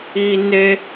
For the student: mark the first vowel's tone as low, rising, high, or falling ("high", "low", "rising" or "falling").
high